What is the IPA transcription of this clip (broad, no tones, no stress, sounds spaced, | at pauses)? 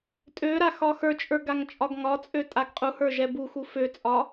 tʼ ø ɾ a x ɒ x ə˞ t͡ʃʼ ə˞ ɡ a ŋ t͡ʃʼ ɒ ɡ ŋ ɒ t͡sʼ ø tʼ a ɡ qʼ u h ə˞ ʒ ɛ b u x u f ø t͡sʼ ɒ